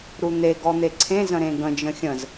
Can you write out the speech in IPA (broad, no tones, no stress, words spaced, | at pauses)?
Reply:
ɾun̪e ɡɔn̪eǀʰẽ zə̃ɾẽɡə̃ d͡ʒə̃xʲə̃z